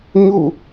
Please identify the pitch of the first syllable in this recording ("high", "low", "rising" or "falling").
falling